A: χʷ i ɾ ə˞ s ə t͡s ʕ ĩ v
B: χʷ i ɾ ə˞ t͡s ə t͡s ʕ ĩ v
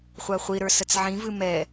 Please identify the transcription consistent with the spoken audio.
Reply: A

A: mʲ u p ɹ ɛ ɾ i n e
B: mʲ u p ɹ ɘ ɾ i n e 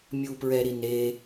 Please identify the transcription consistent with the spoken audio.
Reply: A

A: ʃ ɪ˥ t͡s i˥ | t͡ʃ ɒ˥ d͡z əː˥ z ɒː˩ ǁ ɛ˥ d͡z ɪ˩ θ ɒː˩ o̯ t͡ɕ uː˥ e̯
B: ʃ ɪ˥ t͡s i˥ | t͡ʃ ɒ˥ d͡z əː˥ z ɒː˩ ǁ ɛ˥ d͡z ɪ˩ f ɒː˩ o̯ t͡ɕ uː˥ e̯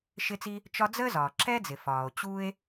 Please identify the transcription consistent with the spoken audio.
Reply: B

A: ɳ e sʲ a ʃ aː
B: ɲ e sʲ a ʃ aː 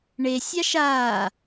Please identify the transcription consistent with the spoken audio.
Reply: A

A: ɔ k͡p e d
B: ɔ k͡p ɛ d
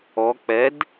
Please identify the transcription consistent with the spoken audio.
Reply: B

